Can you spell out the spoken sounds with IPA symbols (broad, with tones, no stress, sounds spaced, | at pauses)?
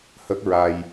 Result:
h ə˦˥ k̚ ɹ a˧ j